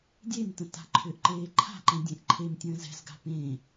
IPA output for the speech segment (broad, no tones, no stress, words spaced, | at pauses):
dʲemtə̃ ta̤ǃʰʏʔǃeː ǃʰa̤ǃɛ̃ dʲẽʔǃʰemtʲə̃ːz ɛ̤zɡa̤ pẽ